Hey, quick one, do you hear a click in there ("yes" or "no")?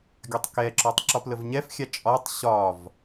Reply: yes